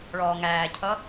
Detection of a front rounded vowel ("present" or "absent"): absent